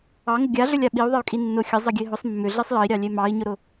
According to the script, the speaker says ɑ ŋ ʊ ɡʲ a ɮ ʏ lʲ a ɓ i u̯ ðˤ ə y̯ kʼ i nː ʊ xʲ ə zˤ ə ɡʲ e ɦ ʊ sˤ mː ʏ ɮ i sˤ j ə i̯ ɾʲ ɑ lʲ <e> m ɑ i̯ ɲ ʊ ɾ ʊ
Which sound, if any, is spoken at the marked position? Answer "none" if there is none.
e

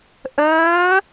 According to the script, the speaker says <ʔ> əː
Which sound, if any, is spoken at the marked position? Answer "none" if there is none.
ʔ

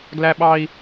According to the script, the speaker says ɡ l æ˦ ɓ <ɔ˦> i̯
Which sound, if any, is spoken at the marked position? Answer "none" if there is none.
ɑ˦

